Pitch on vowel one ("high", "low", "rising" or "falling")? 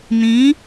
rising